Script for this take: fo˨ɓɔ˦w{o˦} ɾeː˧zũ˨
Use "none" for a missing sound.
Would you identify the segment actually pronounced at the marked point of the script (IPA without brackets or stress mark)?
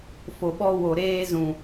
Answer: o˨